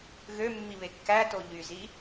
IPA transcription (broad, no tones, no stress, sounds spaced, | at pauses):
ɣ ø mː i β e kː æ t o ʎ y z i